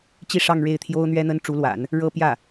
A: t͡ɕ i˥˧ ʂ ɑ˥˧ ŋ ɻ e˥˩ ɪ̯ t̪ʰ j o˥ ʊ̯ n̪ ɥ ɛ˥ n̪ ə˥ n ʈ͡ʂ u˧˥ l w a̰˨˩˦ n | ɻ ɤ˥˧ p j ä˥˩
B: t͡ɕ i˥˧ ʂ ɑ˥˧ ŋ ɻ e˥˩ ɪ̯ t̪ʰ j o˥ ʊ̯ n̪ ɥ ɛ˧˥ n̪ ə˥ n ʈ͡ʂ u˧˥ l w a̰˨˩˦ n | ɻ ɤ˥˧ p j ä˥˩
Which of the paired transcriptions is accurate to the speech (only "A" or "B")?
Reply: A